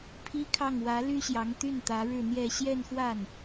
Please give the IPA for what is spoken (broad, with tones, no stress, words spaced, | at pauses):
pʰi˥kʰɑ˥˩ŋ wä˧˥ ly˥ɕjɑ˧˥ŋ t̪y˥˩nt̪ä˧˥ ɻɻ̩˥˧n̪jɛ˥˧ ɕjɛ˥˧nxwa˥˩n